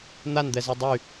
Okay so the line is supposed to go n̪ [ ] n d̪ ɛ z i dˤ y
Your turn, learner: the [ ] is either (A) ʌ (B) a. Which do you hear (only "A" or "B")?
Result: B